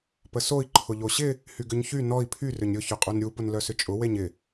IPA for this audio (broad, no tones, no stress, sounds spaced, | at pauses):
p ə s o i̯ ǃʰ ʊ ʎ o ɕ ɪ | h y ɡ ʏ ɲ ç y n ɔ i̯ pʰ y r ʏ ɲ ɾʲ ʊ ç ʊ qʼ u n ɾʲ u p ʊ n l œ s ʏ t͡ʃʼ ʊ w e ɲ ɪ